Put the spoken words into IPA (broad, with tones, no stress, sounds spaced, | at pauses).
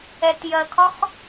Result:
ɛ˩ t j ɜ˩ kʰ ɒ˥ x